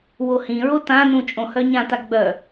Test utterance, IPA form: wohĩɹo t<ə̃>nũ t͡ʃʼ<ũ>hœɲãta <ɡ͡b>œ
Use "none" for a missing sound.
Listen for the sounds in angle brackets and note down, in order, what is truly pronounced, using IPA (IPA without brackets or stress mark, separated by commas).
ã, õ, ɡ͡b